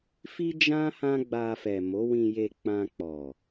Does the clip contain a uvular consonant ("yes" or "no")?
no